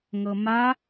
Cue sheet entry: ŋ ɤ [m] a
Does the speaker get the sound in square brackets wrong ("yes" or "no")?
no